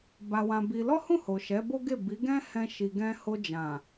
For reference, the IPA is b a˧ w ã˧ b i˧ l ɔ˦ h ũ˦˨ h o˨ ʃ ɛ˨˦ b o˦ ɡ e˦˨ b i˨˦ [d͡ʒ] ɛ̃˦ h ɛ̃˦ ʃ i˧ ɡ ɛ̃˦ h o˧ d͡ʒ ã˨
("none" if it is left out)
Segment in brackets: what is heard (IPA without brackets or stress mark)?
ɡ